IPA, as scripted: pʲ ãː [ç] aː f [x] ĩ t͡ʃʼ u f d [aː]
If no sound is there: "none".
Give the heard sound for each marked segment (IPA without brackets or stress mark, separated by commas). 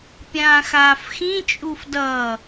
x, x, ʌː